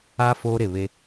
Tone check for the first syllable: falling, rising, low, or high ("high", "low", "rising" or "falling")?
high